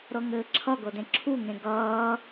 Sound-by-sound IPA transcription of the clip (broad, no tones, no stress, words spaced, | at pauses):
ɾɤŋɘːǁʰʌɡɤ dẽǁʰuŋẽ ɡʌː